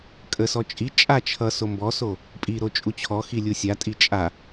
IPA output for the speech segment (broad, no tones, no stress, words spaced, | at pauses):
kʼəsɔ t͡ʃʼi t͡ʃʼa t͡ʃʰʌ sombɔso | pʼiɾo t͡ʃʼut͡ɕʰɔxi lʲusʲatʼi t͡ʃʼa